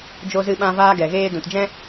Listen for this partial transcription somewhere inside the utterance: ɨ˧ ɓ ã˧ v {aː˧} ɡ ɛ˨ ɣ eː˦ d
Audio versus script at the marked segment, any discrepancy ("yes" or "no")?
yes